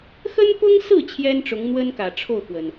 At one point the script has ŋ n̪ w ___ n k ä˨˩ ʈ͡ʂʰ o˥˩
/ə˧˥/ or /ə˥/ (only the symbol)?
ə˥